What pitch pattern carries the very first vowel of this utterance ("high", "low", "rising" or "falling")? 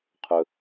low